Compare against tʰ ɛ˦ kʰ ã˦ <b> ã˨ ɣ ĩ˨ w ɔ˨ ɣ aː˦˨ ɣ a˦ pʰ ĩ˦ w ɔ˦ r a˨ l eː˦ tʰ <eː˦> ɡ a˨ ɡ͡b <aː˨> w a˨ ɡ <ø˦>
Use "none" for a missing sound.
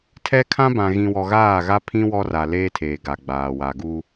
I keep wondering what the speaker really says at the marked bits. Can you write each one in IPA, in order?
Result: b, eː˨, aː˨, u˦

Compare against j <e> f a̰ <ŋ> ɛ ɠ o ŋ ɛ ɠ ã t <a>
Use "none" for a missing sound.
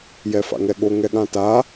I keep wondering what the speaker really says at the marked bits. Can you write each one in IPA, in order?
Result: ɛ, ŋ, a

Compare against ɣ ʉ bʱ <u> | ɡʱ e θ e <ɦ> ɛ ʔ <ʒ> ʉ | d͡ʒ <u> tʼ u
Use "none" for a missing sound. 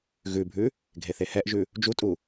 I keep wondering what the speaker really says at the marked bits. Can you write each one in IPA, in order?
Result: ʉ, h, ʒ, u

